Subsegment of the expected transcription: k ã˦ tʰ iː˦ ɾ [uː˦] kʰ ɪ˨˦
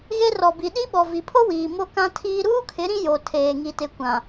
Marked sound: correct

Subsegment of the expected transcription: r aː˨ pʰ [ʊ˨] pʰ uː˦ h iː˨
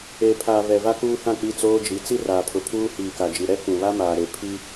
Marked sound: correct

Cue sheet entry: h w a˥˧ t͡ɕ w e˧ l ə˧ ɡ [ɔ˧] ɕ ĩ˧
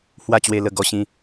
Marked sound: correct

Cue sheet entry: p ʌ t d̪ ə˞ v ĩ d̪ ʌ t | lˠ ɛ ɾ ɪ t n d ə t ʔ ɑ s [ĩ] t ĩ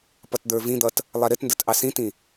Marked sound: correct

